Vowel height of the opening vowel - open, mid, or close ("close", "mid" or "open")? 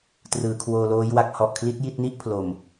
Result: close